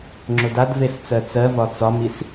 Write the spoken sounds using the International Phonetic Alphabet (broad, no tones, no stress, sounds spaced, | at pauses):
ŋ͡ǁ ʊ d a d v e s t͡s ɜ t͡s ɜ v ɒ t͡s ɒ m i s